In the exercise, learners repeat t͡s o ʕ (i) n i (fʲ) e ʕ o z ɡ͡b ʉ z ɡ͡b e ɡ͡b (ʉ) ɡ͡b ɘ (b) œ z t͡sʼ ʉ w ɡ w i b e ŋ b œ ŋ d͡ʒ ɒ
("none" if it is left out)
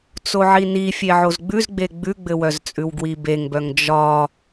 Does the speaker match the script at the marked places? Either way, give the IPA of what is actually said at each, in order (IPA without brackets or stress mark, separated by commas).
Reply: i, fʲ, ʉ, w